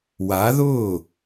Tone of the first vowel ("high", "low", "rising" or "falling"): rising